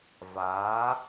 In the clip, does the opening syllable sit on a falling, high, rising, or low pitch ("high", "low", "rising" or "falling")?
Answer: rising